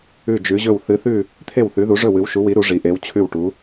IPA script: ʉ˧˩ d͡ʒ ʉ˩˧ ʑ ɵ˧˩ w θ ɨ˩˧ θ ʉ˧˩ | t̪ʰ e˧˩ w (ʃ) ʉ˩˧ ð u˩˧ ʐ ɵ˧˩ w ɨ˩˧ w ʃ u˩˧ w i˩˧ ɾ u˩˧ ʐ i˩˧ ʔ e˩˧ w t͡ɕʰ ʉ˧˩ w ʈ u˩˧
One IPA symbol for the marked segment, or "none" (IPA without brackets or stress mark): θ